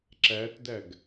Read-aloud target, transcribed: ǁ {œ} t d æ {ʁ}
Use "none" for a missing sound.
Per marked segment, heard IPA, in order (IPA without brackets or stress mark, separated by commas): æ, ɡ